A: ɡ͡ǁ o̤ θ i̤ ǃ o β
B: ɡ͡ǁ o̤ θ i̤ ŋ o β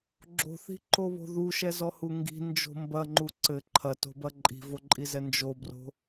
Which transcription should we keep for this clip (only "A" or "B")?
A